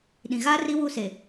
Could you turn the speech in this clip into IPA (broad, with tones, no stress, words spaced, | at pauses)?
ɗĩ˨ɣaː˦ri˦ wu˦˨se˨